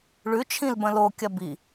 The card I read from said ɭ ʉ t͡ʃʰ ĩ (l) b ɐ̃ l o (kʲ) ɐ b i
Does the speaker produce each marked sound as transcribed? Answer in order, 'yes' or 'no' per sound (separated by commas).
yes, yes